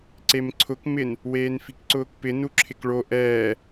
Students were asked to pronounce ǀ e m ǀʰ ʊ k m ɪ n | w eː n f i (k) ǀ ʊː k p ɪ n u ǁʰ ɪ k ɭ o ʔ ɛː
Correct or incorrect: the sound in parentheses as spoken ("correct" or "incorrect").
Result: correct